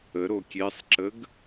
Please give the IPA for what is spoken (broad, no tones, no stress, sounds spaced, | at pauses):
ə ɾ o kʲ e sˤ ǁ ə ɡ